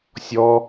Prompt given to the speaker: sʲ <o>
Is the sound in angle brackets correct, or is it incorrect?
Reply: incorrect